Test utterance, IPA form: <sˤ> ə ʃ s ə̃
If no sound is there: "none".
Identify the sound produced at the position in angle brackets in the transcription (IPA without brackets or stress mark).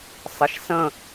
sˤ